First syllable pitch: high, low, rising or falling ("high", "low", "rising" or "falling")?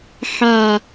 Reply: low